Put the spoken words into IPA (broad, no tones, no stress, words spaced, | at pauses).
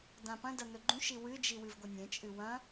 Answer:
dãpɐ̃dɐ nɵɡ͡ǃũʃi wɨd͡ʒi wɨvɡʷɐnʲẽt͡ʃʼɨ wɐ̃